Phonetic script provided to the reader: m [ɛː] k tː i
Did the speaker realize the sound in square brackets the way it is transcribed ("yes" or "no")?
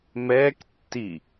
yes